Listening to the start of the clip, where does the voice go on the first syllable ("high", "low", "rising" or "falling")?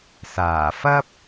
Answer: low